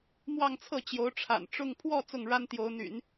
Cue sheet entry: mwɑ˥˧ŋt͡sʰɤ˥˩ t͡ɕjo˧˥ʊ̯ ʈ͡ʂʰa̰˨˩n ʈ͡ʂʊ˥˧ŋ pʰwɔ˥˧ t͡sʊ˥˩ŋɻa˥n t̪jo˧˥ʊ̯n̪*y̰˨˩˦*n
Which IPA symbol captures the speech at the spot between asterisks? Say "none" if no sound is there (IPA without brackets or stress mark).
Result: y̰˨˩˦